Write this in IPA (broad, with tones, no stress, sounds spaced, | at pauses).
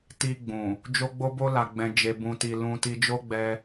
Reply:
t i˧ ɡ͡b ũ˨ | d͡ʒ o˦ ɡ͡b o˦ b o˦ l a˧ ɡ͡b ɛ̃˧ d͡ʒ e˧ b ũ˧ t i˧ l ũ˦ t i˦ d͡ʒ o˦ ɡ͡b ɛ˧